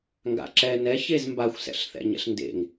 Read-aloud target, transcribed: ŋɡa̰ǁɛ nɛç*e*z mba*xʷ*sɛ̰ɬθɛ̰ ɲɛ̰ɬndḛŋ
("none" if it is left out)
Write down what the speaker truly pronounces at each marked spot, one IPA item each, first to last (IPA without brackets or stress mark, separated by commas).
e, xʷ